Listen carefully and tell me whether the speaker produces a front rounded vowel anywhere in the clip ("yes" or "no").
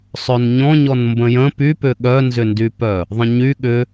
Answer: yes